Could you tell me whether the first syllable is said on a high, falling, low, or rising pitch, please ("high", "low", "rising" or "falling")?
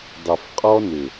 low